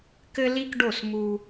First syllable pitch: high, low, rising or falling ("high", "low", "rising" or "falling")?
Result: high